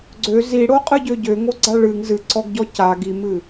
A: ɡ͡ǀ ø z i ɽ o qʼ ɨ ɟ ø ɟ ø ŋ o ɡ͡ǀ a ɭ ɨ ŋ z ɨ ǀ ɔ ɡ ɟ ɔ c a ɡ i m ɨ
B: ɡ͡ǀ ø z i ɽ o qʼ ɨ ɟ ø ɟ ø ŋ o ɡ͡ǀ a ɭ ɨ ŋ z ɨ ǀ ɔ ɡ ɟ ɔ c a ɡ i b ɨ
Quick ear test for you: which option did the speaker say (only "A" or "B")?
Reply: A